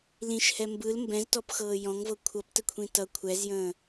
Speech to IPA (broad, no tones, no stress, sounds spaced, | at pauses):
l ĩ ʃ h ɛ m b ɯ l m b ɛ̃ z t ɔ p x ɤː j ɔ̃ ŋ v ɤ kʷʰ ʌ p t ə kʷʰ ĩ t ʌ kʷʰ ɛ z j ə̃ː